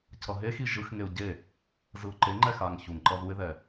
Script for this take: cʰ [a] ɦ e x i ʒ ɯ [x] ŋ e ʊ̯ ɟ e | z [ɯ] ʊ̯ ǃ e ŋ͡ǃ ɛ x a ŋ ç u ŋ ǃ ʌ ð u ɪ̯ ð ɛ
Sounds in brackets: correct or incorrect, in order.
incorrect: ʌ, correct, correct

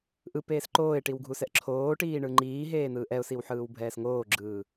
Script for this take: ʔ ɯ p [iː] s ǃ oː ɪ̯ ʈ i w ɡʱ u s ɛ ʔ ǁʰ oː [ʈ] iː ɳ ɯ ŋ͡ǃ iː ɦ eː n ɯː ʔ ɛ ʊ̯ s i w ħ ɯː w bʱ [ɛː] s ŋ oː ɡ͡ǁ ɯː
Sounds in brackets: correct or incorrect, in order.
incorrect: eː, correct, correct

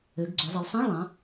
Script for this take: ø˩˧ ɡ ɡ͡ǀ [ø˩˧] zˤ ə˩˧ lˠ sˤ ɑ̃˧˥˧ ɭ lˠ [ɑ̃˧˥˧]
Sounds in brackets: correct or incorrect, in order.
correct, incorrect: ɑ̃˩˧

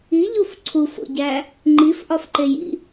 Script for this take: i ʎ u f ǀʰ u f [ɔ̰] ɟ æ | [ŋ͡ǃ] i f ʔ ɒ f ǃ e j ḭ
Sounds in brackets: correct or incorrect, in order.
incorrect: o̰, correct

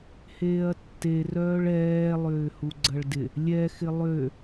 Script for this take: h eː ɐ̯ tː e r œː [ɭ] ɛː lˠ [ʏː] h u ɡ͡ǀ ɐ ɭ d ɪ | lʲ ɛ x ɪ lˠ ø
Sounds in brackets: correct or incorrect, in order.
correct, correct

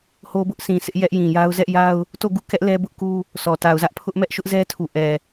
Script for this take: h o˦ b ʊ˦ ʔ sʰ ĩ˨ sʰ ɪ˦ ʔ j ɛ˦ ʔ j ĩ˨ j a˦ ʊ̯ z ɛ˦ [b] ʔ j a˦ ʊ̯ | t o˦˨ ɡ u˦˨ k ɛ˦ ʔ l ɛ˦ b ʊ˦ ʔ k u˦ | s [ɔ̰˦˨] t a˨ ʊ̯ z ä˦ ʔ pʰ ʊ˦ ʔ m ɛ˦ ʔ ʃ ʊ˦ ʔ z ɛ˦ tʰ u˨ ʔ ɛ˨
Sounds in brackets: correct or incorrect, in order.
incorrect: none, incorrect: ɔ˨

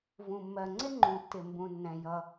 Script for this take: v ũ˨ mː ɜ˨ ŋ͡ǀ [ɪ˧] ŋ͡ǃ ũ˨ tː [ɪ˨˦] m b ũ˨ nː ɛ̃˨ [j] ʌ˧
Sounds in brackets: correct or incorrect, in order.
incorrect: ɪ˦, incorrect: ɪ˨, correct

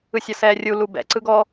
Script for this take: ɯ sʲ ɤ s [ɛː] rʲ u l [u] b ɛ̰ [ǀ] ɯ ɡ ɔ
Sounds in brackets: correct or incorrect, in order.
correct, correct, correct

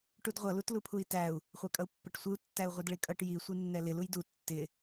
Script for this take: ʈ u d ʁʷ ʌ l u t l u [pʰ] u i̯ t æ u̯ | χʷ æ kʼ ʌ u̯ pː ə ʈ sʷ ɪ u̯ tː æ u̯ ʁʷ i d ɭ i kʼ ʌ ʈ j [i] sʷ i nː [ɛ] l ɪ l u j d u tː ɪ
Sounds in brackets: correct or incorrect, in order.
correct, correct, correct

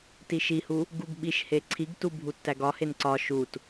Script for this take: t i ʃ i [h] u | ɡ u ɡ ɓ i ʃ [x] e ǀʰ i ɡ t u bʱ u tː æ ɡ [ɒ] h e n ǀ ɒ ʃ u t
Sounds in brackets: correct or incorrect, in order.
correct, incorrect: h, correct

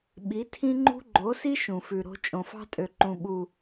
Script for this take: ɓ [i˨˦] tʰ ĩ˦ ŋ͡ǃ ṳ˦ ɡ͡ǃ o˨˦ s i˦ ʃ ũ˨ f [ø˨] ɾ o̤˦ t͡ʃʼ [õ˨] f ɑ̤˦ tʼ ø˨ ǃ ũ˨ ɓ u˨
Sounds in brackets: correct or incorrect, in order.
correct, incorrect: ʉ˨, correct

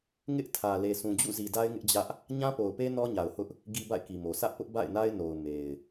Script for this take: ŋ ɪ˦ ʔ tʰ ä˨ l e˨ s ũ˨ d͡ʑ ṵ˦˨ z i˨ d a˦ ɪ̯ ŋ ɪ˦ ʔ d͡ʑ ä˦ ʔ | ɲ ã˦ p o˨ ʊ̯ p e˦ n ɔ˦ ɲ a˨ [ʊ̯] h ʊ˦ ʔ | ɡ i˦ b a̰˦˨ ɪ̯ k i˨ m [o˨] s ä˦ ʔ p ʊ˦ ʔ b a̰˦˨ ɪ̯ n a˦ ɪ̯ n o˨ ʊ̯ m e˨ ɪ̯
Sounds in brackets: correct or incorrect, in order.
correct, correct

